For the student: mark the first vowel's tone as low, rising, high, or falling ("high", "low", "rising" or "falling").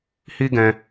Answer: high